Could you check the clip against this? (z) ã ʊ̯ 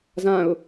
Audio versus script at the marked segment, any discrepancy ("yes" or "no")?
no